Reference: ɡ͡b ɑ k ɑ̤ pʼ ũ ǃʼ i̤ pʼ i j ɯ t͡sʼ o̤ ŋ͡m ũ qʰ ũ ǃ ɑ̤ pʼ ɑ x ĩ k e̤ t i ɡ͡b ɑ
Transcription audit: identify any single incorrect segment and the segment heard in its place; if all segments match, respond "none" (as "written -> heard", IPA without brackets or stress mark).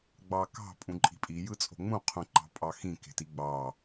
none